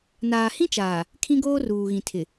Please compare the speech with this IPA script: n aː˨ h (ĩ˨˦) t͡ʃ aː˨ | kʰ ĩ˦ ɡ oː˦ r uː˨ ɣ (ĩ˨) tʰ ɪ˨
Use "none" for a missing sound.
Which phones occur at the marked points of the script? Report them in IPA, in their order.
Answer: ĩ˦, ĩ˨

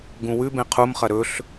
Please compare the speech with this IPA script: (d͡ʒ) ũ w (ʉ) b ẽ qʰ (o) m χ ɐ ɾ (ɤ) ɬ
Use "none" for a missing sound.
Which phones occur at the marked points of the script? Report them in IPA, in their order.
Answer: ɡ, ʉ, u, ɵ

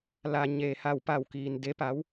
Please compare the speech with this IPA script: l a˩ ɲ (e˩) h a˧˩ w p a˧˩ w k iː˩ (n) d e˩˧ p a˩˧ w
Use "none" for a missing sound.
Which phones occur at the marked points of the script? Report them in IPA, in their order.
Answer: e˩, n

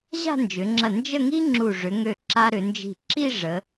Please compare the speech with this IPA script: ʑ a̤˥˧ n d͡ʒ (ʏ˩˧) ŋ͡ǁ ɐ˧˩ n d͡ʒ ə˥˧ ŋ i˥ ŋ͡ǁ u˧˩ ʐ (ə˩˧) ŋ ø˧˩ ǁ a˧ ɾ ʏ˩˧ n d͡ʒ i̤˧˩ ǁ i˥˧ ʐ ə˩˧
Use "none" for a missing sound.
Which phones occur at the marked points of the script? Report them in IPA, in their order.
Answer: ʏ˩˧, ʏ˩˧

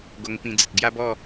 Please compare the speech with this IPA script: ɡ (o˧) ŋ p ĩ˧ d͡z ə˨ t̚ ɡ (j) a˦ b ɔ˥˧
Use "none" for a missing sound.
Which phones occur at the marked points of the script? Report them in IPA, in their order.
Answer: o˧, j

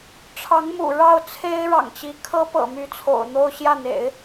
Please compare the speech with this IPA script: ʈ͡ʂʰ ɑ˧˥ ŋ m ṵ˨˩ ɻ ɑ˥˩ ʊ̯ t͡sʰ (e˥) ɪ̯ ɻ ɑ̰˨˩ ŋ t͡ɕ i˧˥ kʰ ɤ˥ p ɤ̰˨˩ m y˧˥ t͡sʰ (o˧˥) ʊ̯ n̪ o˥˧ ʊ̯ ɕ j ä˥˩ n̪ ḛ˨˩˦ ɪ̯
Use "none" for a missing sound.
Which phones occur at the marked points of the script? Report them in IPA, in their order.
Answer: e˥, o̰˨˩

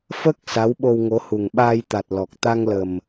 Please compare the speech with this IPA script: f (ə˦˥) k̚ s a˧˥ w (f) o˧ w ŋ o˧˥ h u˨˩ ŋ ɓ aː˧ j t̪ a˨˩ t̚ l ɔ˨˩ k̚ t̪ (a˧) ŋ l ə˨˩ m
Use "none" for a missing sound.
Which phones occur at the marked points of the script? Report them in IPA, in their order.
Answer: ə˦˥, ɓ, a˧

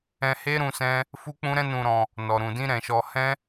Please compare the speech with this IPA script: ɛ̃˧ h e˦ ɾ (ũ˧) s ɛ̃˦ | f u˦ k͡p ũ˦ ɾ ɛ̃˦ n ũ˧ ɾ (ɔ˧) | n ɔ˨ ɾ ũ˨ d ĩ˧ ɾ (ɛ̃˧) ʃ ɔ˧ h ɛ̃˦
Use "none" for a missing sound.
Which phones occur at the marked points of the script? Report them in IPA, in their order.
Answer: ũ˧, ɔ̃˧, ɛ̃˨

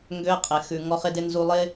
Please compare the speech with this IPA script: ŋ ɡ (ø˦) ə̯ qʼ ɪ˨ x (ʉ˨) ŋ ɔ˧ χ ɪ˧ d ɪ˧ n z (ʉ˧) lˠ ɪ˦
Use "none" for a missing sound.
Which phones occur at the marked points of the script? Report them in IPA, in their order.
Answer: ø˧, ʉ˨, u˧

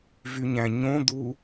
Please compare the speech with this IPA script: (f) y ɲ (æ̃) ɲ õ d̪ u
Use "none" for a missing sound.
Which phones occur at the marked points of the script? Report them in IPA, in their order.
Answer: v, æ̃

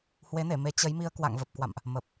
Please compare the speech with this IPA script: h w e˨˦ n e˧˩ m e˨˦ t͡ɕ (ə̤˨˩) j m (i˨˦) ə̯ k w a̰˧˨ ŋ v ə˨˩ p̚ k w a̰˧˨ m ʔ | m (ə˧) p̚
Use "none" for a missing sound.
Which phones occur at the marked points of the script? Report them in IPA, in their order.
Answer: ə˨˦, i˧, ə˨˩

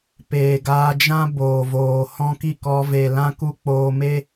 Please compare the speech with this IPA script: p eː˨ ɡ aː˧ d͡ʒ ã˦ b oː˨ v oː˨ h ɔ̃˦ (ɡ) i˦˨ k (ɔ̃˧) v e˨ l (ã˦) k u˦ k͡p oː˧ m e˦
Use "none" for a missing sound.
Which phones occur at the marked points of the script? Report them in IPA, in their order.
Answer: k, ɔ˧, ã˦

